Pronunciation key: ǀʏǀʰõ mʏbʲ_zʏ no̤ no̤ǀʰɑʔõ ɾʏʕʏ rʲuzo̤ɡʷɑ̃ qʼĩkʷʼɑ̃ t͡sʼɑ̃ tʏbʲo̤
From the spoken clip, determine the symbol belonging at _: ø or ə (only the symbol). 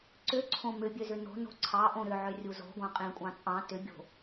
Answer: ø